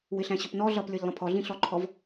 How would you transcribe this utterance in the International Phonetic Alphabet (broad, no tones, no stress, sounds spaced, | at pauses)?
w ɪ ɬ æ̃ ɕ ʊ p n ɔ ɮ ʌ p lʲ ə˞ ʎ lˠ ə̃ pʰ ɔ ɮ ĩ ɬ ɔ ǃʰ ɔ v